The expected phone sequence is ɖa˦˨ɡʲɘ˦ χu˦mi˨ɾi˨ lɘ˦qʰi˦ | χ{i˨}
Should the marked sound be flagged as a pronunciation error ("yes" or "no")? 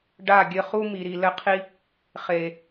yes